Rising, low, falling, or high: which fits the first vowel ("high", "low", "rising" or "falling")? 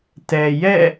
low